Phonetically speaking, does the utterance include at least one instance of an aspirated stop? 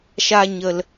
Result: no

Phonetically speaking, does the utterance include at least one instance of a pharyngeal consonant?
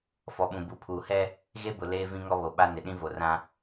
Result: no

